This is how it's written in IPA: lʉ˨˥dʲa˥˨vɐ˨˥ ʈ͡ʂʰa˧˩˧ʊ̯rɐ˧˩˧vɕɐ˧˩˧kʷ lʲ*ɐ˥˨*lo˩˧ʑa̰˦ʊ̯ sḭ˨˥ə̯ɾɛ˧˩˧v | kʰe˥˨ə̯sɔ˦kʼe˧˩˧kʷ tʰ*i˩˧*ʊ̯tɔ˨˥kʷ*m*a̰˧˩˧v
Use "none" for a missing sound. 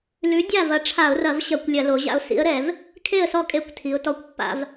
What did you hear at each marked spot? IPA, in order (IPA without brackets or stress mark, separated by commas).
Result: ɐ˧˩˧, i˩˧, pː